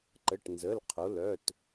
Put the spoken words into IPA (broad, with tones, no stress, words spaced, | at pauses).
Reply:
ǃə˩˧˩ʈnzə˩˧˩lqʰo˩˧lœ˩˧˩t